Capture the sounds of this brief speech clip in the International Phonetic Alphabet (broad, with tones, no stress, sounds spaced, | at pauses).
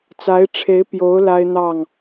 t͡s a˧˥ ɪ̯ ʈ͡ʂʰ e˧˥ ɪ̯ p j o˧˥ ʊ̯ l a˥ ɪ̯ n̪ ɑ˥˩ ŋ